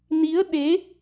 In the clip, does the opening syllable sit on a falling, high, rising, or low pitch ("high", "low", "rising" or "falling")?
rising